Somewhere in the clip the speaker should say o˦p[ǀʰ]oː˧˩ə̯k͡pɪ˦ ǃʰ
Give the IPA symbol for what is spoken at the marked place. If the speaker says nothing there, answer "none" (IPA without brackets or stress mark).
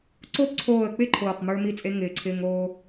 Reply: ǀʰ